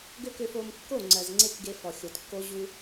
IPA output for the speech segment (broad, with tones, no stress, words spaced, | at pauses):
ɡø˦kø˧fo˧m kːo˦˨ ŋ͡ǀɜ˨zŋ͡ǀe˦kɡe˧ fɔ˨xʲo˨tkːo˦ ʑu˧